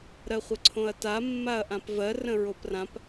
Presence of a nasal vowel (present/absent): present